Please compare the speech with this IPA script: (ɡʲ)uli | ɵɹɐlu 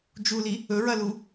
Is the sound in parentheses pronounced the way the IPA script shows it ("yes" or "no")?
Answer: no